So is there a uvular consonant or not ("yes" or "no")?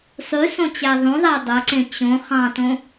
yes